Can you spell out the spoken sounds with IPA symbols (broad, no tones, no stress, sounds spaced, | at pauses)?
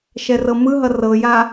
ʃ ɛ r ɤ m ɯ ɦ ʌ r ɤ j a